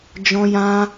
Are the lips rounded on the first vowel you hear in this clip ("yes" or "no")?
yes